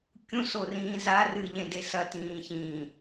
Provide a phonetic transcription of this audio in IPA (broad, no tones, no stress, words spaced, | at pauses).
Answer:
kʲũsorĩː za rɨʎẽde sɐtĩː çĩ